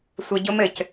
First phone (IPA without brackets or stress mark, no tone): sʷ